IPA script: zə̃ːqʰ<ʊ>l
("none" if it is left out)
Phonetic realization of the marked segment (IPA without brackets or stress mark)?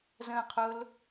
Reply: ʊ